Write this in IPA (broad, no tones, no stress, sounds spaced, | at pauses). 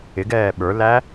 ɪ ɡ ɛː ɓ ə˞ l æ